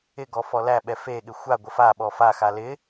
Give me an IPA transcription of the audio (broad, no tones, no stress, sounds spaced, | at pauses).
ɪ ɡ ɔ f ɔ l æ ɓ ɛ f e ɠ ɪ xʷ a ɡʷ ə f a ɓ ɔ f a x a l ɪ